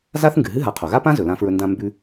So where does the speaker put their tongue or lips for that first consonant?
tongue tip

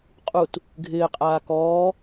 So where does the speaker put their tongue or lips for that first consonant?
uvula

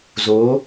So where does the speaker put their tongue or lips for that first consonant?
tongue tip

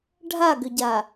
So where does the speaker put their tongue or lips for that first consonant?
retroflex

